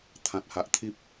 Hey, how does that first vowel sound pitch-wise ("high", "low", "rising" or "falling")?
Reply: low